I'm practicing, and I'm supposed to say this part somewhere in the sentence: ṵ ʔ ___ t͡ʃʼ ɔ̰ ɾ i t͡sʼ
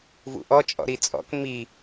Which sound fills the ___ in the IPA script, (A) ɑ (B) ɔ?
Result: B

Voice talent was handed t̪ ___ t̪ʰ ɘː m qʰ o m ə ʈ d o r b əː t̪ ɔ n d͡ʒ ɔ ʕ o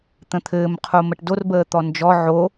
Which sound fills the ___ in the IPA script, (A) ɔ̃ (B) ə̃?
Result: B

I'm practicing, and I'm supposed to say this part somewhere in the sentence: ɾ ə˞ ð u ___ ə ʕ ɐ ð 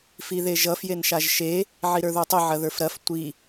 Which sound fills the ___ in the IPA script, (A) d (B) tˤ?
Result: B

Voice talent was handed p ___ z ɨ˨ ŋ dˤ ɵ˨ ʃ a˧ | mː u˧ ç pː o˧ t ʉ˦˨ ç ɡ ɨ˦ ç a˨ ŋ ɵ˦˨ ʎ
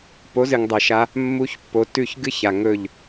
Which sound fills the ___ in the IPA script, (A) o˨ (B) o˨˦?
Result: B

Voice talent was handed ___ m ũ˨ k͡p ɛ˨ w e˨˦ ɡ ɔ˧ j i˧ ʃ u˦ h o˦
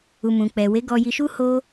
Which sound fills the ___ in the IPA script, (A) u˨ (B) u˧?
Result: A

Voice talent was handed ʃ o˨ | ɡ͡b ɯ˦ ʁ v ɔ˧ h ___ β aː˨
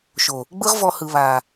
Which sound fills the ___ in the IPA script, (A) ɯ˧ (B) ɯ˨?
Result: B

